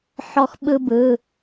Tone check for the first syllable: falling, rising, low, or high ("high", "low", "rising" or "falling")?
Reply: high